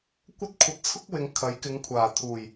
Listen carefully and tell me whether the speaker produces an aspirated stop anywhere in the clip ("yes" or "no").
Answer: yes